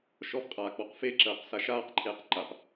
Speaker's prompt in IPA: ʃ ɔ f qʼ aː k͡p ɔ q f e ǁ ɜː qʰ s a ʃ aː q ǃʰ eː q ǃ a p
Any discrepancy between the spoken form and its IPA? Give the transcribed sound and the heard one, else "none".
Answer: qʰ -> q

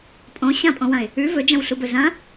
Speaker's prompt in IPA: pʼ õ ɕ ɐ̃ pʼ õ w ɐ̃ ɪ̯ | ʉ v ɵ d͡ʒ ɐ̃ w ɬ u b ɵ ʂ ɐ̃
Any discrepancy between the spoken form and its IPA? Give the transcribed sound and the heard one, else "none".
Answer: ʂ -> z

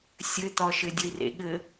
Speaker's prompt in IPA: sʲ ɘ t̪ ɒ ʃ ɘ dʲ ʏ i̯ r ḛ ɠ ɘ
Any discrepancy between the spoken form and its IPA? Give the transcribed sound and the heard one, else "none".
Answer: ʏ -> ə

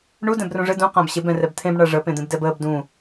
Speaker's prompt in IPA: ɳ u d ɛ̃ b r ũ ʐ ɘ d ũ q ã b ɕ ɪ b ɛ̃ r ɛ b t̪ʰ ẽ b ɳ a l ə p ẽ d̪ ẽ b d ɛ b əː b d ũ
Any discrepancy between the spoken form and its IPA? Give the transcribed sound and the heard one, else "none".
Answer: l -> ʐ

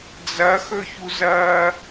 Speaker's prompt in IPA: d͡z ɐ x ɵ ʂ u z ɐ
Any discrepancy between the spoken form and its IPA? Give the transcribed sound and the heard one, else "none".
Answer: ʂ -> ç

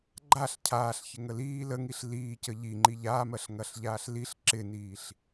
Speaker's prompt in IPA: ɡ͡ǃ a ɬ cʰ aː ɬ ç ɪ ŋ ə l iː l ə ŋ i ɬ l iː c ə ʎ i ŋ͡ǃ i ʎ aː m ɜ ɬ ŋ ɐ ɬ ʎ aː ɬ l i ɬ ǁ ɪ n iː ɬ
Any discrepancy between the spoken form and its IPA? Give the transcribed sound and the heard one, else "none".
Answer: none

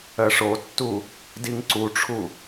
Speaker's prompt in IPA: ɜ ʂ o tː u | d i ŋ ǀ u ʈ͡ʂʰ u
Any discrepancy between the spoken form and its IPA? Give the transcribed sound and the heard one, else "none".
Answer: none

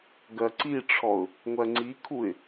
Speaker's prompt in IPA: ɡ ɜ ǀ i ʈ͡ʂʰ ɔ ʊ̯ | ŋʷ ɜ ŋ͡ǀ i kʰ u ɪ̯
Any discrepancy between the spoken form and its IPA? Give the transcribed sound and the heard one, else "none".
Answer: none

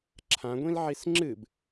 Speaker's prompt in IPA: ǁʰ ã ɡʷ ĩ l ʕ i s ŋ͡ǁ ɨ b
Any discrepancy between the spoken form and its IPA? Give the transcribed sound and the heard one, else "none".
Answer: none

